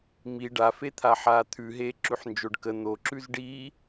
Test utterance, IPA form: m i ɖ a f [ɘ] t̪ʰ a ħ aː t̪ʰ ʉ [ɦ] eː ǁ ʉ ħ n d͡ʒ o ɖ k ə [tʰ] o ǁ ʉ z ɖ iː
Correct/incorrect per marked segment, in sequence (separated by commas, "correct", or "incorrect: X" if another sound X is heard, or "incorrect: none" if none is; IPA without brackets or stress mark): incorrect: e, correct, incorrect: n̪